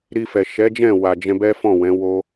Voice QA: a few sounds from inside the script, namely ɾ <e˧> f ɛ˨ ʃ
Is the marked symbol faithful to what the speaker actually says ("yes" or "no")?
no